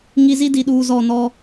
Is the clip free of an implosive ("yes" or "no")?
no